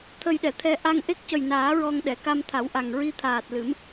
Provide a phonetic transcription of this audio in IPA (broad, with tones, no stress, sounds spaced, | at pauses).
t̪ʰ ə˧ j ɗ ɛ˨˩˨ t̪ʰ ɛ˧ ʔ a˧ ŋ ʔ e˦˥ k̚ c ə˨˩ j n aː˨˩˦ ɹ ɔ˧ ŋ ɗ ɛ˨˩˨ k a˧ m t̪ʰ a˨˩˦ w ʔ a˨˩ ŋ ɹ i˧ t̪ʰ aː˨˩ t̚ l ɨ˨˩˦ m